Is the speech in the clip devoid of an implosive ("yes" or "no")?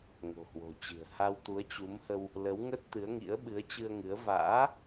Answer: no